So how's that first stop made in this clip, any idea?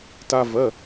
plain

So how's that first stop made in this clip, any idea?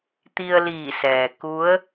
plain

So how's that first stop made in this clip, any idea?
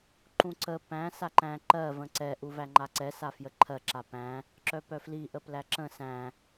click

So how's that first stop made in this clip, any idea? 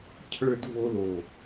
aspirated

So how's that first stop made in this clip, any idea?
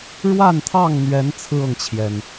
aspirated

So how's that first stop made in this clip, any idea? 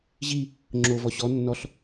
click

